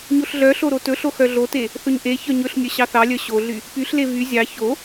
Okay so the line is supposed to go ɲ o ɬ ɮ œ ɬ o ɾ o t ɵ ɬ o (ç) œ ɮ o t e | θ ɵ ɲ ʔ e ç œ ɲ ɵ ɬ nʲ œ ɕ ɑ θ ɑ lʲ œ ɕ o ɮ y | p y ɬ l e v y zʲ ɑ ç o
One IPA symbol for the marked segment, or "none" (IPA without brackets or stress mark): x